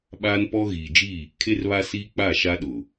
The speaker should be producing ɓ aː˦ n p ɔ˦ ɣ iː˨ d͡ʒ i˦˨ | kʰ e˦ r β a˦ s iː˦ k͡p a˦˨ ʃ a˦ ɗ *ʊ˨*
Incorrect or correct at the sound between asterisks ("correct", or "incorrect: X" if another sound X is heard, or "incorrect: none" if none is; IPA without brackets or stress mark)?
correct